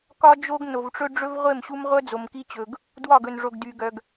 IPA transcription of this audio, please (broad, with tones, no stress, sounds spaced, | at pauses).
k ɒ˦ d͡ʒ o˦ ɡ n o˨ v ʈ͡ʂ ɵ˦ ɖ͡ʐ ɵ˦ v ʁʷ e˦˨ m ɕ u˦ m ʁʷ œ˦ d͡z o˨ m k i˦ t͡ɕ ɵ˨ ɡ | d w ɒ˦˨ ɡ ɵ˨ n ʐ o˨ ɡ d y˨ ɡ œ˨ ɡ